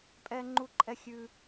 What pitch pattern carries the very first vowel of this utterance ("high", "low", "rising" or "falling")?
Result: high